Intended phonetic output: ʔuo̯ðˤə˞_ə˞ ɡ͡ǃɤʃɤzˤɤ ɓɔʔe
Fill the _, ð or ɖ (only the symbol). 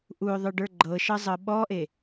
ɖ